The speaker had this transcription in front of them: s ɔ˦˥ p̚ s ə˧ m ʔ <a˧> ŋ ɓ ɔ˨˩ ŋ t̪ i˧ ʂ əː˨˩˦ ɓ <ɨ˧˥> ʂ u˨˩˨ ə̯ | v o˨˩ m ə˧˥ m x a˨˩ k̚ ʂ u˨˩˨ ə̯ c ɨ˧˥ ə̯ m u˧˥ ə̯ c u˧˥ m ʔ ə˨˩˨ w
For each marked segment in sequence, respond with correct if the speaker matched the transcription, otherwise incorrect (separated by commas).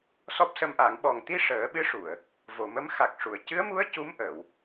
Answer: incorrect, correct